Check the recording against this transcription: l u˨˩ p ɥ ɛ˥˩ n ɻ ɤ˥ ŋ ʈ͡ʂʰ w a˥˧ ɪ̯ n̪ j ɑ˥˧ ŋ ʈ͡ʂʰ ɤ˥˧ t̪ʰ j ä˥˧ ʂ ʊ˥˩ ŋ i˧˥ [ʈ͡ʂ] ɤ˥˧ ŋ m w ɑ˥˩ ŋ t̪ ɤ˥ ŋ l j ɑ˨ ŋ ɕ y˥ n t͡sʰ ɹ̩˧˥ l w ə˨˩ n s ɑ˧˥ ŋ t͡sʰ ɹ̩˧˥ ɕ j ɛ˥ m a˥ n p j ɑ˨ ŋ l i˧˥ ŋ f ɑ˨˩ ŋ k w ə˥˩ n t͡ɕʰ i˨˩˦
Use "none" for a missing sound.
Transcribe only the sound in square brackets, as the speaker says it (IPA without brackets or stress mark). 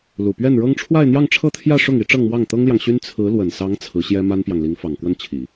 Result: ʈ͡ʂ